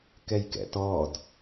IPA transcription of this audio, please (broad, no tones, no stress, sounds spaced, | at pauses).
k ɛ j k ɛ̰ t ɔ d